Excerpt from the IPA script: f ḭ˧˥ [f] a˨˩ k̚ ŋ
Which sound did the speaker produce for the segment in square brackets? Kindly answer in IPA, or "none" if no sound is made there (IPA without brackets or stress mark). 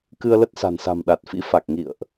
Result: f